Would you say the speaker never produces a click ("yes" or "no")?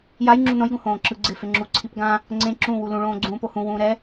no